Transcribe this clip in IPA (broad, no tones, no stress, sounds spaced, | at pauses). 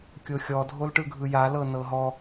kʲ o xʲ ɔ dʱ o l ʈ ɯ ɡʱ ɯ j a l ɤ n ɤ ɦ ɔ